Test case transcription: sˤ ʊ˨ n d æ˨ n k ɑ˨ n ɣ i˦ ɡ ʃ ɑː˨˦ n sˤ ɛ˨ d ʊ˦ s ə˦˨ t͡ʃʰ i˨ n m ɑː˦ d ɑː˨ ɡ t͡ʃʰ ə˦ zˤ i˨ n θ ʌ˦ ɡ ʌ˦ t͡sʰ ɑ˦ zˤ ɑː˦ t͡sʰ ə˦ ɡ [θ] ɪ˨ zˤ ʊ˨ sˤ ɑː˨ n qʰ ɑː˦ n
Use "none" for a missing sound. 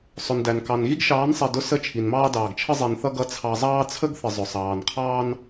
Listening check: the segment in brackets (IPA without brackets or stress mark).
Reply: θ